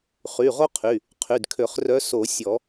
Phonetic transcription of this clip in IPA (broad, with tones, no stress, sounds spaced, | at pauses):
χ y˩˧˩ ʁ o˥ qʰ y˩˧˩ | qʰ y˩˧˩ d kʰ ø˨˩˦ χ r œ˧˥ s o˨˩˦ sʲ ɔ˨˩˦